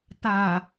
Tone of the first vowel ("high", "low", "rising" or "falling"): low